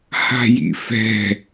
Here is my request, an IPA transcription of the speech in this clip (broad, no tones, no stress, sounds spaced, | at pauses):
h a̤ j ḭ f ɛ̤